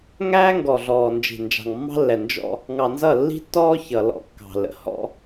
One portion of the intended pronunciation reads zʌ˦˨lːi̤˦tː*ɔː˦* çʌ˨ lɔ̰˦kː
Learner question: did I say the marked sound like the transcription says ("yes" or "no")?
yes